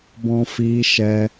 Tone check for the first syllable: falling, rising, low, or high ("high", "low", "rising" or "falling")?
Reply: high